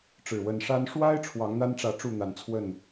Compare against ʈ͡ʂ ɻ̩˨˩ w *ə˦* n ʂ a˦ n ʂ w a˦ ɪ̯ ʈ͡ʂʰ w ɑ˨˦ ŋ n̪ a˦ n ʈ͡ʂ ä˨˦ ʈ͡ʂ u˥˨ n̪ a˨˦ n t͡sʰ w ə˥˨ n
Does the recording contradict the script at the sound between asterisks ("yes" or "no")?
yes